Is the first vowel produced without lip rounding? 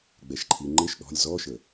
yes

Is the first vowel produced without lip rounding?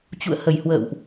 no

